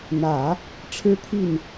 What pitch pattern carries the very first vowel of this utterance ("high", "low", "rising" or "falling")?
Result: low